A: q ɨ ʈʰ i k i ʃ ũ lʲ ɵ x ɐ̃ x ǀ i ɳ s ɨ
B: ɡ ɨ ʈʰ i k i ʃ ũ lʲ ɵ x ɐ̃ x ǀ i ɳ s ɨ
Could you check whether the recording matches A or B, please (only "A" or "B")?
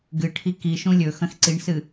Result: B